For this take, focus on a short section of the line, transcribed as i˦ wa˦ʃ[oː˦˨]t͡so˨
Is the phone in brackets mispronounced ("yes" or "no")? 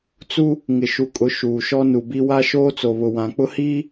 yes